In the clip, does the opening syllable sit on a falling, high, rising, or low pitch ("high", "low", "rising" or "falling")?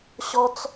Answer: high